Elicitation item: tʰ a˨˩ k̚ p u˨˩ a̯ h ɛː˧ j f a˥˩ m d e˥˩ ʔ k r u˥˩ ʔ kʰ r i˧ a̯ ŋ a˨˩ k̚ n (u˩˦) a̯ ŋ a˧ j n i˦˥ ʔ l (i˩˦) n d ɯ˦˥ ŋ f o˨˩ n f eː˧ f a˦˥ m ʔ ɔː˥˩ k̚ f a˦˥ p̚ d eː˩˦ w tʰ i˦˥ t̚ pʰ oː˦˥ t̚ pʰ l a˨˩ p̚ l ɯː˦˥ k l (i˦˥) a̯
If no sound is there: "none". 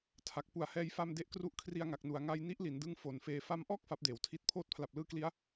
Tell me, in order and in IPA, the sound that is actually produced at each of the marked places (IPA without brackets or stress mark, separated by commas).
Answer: u˩˦, i˩˦, i˦˥